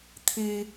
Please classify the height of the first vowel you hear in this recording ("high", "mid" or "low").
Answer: high